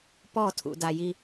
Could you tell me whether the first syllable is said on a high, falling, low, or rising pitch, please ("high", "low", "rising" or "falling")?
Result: falling